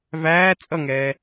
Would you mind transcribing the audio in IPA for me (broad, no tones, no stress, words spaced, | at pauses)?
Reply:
væː t͡sʼʌŋɛː